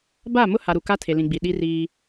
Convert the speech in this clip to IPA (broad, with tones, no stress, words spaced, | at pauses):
ba˦˨ mʊ˦ha˨ɾu˨ ka˦tʰe˨lĩ˨ɡ͡bi˨ ɗi˦riː˦